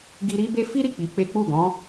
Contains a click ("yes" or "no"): no